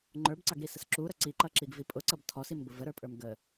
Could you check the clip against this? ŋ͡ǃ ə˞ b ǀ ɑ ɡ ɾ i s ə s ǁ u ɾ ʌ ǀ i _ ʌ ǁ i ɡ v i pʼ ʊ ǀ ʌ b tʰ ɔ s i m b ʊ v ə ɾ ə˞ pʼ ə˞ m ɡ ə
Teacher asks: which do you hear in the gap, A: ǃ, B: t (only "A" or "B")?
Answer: A